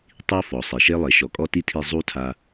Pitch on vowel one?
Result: high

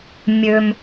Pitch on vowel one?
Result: low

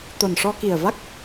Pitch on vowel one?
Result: low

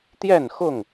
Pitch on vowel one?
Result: falling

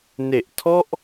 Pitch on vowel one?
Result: low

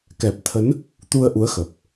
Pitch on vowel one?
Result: low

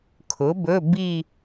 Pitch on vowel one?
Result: rising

